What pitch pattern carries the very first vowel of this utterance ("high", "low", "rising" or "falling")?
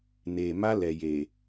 low